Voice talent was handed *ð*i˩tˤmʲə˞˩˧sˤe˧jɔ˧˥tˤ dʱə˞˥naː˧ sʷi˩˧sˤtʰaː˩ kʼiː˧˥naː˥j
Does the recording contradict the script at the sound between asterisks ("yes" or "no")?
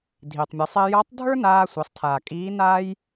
yes